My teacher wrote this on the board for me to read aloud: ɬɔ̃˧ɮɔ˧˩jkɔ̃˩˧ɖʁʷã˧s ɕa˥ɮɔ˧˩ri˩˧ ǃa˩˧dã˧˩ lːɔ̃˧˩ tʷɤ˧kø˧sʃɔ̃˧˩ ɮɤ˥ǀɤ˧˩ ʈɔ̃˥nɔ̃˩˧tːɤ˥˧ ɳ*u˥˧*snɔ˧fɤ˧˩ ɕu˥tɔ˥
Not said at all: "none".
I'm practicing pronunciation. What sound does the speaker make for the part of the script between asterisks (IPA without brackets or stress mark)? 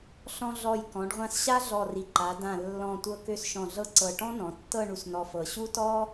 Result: u˧